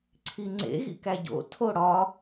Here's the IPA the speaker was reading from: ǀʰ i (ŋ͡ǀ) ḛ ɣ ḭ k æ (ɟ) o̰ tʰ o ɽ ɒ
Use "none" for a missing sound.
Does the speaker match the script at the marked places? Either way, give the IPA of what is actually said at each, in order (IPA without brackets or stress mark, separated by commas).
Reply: ŋ͡ǀ, ɟ